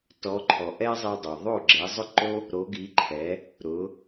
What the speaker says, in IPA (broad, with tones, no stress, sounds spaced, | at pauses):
t ɔ˩˥ ǃʰ ɔ˩ ʔ ɛ˥ zˤ i˧ dˤ o˩ ðˤ o˥˩ ɡ͡ǁ ɛ˩˥ zˤ ʊ˥ ǃ o˥ | ɾ o˩˥ ɡ i˩˥ ǃʰ ɛ˩˥ | ɾ ʊ˩˥